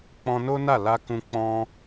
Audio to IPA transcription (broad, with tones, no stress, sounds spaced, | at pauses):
k͡p ɔ̃˧ n o˦ n a˦˨ l a˧ k ũ˧ k͡p ɔ̃˧